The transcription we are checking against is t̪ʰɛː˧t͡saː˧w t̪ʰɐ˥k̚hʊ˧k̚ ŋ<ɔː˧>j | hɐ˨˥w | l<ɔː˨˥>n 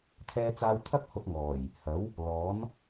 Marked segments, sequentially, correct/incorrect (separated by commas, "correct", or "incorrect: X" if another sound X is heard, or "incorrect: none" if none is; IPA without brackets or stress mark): incorrect: ɔː˨˩, correct